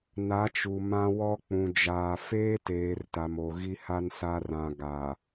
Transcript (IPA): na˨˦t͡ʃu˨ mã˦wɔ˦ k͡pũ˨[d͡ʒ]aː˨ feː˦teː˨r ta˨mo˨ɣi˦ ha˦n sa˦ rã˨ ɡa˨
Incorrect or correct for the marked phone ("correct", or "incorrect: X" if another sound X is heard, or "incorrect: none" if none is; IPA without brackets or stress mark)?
correct